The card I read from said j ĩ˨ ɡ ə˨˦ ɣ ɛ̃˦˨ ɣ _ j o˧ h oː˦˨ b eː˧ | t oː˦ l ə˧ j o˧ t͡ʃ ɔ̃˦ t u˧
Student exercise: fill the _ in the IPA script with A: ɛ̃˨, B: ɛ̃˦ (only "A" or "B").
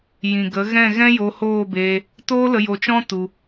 B